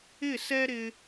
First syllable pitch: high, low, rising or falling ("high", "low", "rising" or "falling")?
falling